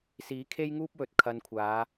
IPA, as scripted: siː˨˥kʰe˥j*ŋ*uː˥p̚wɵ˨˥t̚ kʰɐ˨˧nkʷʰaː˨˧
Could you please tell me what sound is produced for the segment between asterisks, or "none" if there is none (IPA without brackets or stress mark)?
ŋ